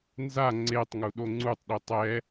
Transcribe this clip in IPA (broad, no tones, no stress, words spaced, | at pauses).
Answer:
nza ŋ͡ǀetˤŋu ɗoŋ͡ǀutˤ ɗitˤɛ